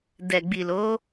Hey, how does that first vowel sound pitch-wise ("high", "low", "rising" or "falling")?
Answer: low